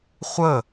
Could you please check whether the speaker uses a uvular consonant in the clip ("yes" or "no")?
yes